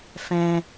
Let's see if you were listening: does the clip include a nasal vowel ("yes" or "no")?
yes